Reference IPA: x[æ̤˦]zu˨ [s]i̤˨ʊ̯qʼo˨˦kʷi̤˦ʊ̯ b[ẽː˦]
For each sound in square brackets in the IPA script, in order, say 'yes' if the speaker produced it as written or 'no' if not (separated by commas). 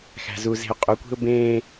no, no, yes